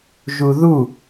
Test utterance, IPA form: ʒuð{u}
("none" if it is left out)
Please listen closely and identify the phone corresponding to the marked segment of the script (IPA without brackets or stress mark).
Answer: u